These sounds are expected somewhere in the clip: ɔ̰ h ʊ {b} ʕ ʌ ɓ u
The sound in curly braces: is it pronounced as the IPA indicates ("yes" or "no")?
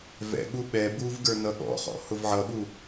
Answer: no